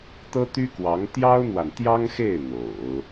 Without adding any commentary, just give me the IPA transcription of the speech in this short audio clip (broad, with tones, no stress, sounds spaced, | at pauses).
t̪ ɤ˥ t̪ y˥ k w ɑ˧˥ ŋ t̪ j ɑ˥ ʊ̯ n̪ w a˨ n t̪ j ɑ˥ ŋ x e˥˩ ɪ̯ n̪ o̰˨˩˦ ʊ̯